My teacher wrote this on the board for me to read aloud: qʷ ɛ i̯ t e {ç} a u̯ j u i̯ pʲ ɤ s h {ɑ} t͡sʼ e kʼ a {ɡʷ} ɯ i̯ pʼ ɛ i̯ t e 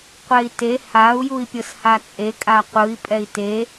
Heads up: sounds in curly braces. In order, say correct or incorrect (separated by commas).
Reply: incorrect, incorrect, incorrect